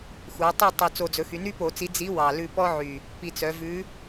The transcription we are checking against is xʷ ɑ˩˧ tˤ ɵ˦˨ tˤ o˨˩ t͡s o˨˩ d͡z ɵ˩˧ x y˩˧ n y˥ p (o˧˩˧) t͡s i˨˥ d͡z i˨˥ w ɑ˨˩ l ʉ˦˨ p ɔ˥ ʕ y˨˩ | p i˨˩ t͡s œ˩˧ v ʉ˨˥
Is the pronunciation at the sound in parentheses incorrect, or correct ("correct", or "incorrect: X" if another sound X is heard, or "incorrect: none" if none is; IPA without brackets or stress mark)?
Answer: correct